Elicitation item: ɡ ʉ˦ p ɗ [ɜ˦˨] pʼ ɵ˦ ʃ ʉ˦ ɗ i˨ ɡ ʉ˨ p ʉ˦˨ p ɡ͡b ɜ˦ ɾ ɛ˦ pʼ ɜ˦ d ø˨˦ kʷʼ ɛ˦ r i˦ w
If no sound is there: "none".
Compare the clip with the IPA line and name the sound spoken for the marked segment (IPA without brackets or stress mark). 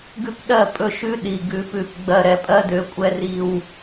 ɜ˦˨